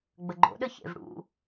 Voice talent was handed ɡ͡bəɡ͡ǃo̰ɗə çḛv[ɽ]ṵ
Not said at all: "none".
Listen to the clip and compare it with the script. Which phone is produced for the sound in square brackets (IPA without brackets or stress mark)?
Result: ɽ